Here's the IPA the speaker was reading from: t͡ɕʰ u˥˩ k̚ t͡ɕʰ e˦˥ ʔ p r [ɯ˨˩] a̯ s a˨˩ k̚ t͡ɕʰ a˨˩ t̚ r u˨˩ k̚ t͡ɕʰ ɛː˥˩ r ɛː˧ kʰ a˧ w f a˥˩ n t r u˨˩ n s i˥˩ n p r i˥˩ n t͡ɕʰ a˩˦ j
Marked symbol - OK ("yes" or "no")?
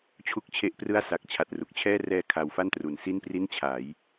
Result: no